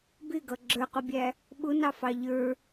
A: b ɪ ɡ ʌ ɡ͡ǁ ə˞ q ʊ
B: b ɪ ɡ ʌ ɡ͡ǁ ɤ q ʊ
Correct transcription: A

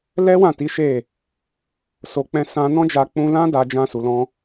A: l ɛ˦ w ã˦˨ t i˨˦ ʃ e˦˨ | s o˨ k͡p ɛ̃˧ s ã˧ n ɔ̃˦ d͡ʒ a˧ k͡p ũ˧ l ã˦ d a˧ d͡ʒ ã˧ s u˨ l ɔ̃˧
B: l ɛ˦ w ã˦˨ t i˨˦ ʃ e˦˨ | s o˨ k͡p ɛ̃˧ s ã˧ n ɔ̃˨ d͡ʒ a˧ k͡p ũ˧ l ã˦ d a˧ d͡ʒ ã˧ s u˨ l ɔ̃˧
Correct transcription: A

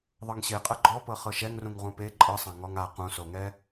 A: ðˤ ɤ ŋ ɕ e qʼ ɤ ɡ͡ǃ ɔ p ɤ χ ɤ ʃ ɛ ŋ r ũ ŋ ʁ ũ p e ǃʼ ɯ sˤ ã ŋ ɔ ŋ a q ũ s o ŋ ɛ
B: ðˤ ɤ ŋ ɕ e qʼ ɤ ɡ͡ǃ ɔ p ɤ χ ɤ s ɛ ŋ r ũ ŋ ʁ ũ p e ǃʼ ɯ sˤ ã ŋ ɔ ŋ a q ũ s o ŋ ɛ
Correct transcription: A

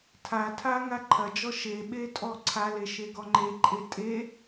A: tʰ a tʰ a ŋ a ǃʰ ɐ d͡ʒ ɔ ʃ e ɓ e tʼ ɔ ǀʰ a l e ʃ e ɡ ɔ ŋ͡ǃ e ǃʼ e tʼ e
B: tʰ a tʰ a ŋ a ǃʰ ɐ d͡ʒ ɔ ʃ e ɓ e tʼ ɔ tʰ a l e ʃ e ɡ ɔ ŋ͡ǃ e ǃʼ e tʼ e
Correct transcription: A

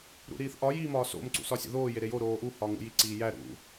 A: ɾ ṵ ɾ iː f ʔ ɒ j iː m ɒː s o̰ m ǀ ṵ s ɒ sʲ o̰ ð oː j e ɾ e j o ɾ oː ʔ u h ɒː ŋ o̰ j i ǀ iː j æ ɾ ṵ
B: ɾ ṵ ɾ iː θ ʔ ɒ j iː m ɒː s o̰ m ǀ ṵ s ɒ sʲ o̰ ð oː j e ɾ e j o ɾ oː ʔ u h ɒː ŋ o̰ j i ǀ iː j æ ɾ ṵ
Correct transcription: B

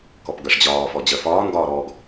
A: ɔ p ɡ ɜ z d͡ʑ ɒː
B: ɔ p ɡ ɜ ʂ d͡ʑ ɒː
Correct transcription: B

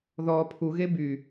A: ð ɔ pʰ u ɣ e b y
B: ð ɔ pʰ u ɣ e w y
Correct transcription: A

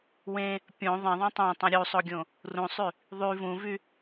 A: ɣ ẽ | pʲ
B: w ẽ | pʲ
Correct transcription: B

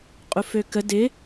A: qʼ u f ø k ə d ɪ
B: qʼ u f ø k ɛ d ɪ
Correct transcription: A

